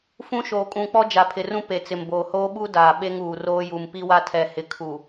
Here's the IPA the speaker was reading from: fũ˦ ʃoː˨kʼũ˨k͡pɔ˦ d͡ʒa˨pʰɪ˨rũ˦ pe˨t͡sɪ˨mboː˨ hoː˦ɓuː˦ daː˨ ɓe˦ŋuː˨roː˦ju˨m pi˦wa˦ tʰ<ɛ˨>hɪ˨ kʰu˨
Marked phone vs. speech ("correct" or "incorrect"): correct